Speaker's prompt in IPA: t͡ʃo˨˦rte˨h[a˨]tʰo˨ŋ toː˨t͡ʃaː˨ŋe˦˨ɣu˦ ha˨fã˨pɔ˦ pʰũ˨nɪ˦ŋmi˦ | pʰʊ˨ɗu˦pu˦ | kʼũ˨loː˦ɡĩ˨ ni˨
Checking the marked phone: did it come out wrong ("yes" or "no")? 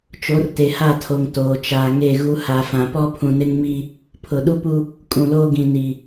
yes